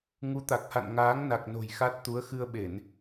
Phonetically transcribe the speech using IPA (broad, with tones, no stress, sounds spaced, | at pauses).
ŋ u˨˦ t̪ a˨˩ k̚ h a̰˧˨ n ŋ aː˨˦ ŋ n a˨˩ k̚ n o̤˨˩ j x a˦˥ t̚ t̪ u˨˦ ə̯ x ɨ˧ ə̯ ɓ e˧˩˨ n